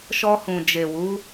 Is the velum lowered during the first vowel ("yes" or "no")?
no